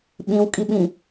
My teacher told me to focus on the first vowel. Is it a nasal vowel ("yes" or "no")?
yes